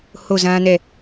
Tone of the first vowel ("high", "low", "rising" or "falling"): falling